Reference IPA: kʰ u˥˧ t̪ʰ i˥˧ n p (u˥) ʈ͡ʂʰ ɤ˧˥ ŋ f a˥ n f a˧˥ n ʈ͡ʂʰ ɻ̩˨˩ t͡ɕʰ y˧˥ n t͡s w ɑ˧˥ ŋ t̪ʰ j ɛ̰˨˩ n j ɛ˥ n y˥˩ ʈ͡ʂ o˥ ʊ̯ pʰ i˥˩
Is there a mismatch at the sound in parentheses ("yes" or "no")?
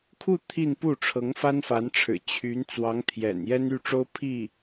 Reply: yes